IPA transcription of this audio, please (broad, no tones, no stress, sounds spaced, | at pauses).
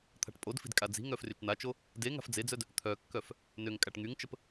t̪ʰ a̤ ʈ pʼ o d f i̤ d kʼ a d͡z i̤ ŋ œ f r y t͡ʃ n̪ a t͡ʃ o | d e ŋ a̤ f d͡z e d͡z œ d | t̪ʰ œ kː œ f | n ø ŋ kʼ a ʈ ŋ y ŋ t͡ʃ ə p